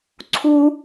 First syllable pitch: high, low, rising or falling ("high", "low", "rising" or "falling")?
high